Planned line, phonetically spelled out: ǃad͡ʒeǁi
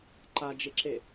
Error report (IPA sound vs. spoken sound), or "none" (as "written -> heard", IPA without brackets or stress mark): i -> e